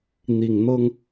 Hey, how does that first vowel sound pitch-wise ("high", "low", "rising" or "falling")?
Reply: low